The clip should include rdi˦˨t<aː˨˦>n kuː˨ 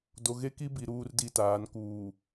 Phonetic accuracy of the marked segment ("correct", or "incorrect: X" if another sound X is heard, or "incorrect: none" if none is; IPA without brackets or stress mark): correct